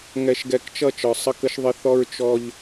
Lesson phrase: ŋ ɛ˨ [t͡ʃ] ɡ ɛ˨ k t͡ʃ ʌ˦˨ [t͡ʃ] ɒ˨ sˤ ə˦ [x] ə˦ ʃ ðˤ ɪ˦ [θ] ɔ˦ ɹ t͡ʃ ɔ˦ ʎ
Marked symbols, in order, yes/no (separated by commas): no, yes, no, yes